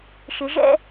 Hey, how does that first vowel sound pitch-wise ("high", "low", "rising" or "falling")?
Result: rising